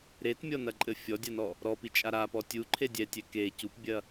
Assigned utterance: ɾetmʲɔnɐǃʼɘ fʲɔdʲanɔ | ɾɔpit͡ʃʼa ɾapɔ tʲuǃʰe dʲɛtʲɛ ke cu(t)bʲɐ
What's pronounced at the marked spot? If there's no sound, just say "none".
p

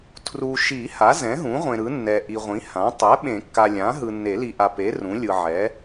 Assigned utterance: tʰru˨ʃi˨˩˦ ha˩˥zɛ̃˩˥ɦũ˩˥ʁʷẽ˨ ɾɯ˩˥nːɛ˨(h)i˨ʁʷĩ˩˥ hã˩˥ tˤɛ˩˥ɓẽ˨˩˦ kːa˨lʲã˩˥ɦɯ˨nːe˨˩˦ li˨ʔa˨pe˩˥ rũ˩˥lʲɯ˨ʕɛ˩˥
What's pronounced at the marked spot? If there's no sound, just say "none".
ʔ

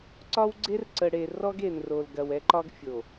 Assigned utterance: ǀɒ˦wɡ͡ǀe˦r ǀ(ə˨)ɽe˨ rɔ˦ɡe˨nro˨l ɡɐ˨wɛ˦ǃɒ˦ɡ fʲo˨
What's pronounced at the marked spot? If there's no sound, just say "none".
ə˨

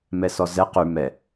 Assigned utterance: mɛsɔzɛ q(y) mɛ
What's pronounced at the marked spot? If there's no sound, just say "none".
y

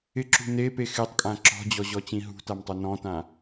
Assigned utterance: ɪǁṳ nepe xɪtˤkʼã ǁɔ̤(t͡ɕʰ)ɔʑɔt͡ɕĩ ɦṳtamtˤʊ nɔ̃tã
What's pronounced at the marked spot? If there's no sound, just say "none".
d͡ʑ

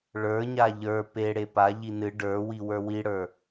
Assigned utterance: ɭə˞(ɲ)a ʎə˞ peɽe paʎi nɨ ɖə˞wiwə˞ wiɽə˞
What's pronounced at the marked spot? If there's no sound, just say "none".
ɲ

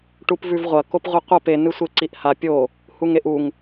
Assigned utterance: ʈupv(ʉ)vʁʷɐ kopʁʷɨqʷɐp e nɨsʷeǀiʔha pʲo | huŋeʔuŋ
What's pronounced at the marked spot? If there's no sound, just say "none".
ʉ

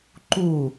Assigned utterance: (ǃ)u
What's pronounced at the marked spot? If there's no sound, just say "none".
ǃ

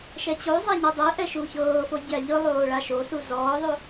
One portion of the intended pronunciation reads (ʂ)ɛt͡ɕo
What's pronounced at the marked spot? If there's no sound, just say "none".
ʃ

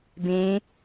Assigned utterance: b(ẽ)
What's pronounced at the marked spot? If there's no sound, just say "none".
ẽ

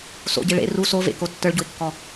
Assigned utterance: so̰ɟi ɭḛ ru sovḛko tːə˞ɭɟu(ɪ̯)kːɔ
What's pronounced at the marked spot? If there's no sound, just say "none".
ɪ̯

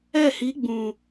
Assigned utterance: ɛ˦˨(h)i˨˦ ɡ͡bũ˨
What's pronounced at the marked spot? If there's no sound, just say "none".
h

